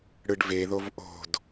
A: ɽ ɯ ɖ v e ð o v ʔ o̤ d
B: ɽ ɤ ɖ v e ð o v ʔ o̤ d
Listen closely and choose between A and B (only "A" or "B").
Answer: A